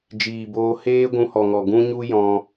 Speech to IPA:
d͡ʒiː˨boː˧ heː˦ɡʷũ˧hɔ˨ŋɔ˨ ɡũ˦ɲu˦jɔ̃˧

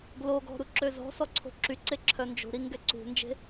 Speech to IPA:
ɡloɡɔ̤ ɾuǁøzɔ̤sɔ ǀʰo̤ǁyǀe ǁʰœnd͡ʒo̤ɾi ŋɡɛǀṳnd͡ʒe̤

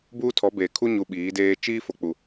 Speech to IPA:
buː˦tʰɔ˨˦beː˨ kʰu˦ɲu˨ ɓiː˨˦deː˦ t͡ʃiː˦ fo˨k͡pu˨

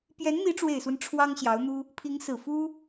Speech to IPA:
pjɛ˧˥nn̪i˧˥ ʈ͡ʂwe˨˩ɪ̯swə˦n ʈ͡ʂʰwɑ˥ŋɕjɑ˧˥ʊ̯n̪u˥ | pʰi˧˥ŋ sɹ̩˨˩fu˥

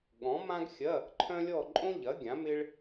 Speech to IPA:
ɠɔ̃˨˥mã˥ɡxʲɐ˧˥˧ | ǃʰœ̃˥lʲɔ˥˧ ǃʼõ˥ʎɐ˨˥ ɡʲã˨˥mɪ˥ɭ

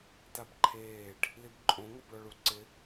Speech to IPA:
tabǃʰeːɖ | libǃʼõ ŋɔbɭɔɭuǀɪ

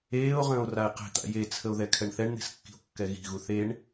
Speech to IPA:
eːo̯ʁə̃ːo̯ rae̯qe̤t̪a̰ jet͡sʰəo̯ ðɛkʰɛɳθɛɳn̪e̤s kːi̤o̯kːɛɣi̤ɣu θeɳ

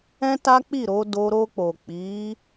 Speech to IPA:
ɛ̃˦ta˦k͡pi˦˨ɾo˨˦ do˧ ɾo˧k͡po˨k͡pi˨˦

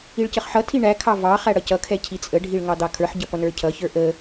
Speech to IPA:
iɭcəχħʌtʰi ɳækʰɑ vɑ χæɽʌcʌkʰɛ cʰit͡sʼəɖʱiɭ ŋɑd̪ɑkʰə˞ħɟʌ pʌnə˞cʰʌçə˞ ʔə

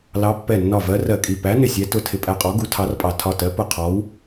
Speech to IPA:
lɑ˨˦ pːɛ˧˩nːɒ˧˩vɜ˨˦ rɜ˧˩kʼi˧˩ pæ˨˦ nɪ˧˩sʲɛ˨˦ tʊ˧˩ tʰɪ˧˩pʼæ˧˩qʼɔ˨˦ ɡu˨˦tʰɑ˨˦rpʼɑ˧˩ tʰɒ˧˩tɜ˨˦ pʊ˧˩qʰɔ˨˦w

